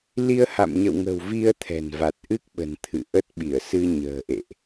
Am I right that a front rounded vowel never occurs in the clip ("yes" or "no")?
yes